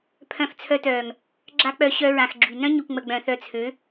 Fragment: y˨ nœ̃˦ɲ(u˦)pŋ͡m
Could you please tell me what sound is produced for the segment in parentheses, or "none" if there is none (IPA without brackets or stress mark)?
u˨